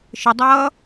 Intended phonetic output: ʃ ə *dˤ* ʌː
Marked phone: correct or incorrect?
correct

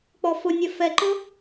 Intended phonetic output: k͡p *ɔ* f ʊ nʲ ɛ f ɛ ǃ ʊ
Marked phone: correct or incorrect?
correct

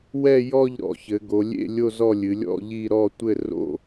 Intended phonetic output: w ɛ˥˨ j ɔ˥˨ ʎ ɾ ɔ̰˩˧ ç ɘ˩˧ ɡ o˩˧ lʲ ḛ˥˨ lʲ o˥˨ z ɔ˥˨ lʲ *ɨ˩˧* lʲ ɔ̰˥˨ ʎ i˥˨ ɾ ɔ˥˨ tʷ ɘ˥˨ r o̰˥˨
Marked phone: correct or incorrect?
correct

